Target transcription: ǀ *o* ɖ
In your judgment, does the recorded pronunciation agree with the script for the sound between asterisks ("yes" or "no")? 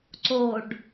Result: yes